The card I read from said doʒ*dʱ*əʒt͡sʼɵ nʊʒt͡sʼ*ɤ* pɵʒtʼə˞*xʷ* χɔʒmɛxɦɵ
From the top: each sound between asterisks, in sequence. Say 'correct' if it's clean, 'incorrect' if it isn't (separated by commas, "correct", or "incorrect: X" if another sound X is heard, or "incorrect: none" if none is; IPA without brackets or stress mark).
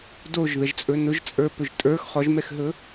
incorrect: ð, incorrect: ə˞, incorrect: x